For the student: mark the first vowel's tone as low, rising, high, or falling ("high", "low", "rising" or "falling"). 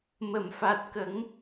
low